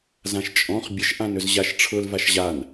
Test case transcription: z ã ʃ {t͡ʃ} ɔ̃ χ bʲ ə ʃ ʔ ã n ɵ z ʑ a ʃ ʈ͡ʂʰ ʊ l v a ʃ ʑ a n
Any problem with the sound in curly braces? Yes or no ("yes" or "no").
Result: yes